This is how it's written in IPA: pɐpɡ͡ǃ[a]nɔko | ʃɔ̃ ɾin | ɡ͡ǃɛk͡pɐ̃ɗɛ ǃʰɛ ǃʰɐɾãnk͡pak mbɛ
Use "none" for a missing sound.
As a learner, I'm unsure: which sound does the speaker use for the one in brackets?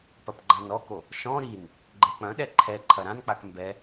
ã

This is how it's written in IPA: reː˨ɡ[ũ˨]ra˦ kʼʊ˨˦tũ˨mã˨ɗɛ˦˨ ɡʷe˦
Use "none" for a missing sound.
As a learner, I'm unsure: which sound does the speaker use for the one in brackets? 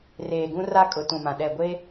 ũ˦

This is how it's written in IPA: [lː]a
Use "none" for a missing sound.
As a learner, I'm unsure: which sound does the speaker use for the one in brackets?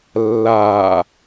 lː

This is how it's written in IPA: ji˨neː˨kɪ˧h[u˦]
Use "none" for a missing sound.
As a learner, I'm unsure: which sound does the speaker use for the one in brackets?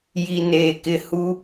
u˦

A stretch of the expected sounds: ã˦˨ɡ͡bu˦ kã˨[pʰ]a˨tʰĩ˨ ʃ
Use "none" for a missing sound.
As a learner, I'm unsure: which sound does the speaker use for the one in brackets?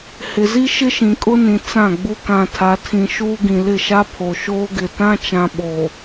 tʰ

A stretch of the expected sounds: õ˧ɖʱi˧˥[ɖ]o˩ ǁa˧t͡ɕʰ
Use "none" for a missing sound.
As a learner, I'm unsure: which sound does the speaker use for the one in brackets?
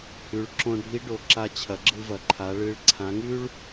ɖ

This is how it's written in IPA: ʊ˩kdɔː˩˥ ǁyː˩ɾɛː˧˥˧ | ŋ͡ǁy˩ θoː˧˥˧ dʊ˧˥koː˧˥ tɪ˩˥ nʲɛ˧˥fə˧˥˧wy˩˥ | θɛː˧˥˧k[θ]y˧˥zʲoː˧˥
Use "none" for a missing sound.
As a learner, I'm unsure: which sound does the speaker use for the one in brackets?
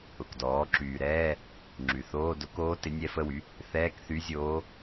θ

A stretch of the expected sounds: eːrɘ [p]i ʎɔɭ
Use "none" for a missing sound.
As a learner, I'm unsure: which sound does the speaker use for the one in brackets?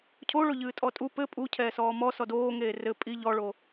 pʼ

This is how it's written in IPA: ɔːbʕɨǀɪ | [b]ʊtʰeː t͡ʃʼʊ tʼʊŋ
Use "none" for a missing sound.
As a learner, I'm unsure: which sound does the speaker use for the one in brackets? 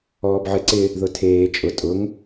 ð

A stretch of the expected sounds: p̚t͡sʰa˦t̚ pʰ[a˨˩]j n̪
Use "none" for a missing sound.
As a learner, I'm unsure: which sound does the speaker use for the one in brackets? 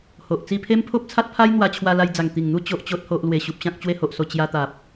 a˦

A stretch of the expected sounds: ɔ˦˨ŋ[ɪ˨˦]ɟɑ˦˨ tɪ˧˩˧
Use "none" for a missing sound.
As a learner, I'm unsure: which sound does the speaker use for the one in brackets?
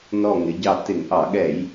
ɪ˨˦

